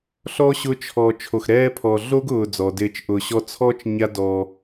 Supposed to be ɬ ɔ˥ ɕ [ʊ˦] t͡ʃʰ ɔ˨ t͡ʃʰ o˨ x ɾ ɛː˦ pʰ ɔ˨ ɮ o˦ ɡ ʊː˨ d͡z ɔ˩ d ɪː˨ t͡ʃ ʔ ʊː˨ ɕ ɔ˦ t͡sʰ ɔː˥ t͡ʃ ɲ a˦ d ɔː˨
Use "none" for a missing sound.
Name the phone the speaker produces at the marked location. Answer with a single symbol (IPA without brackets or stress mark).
ʊ˦